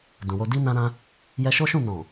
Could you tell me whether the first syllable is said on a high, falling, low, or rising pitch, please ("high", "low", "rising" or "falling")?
low